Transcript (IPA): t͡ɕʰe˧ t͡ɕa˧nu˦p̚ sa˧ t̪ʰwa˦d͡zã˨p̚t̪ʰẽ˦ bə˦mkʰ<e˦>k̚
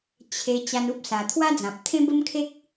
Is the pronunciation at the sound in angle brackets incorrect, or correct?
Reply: correct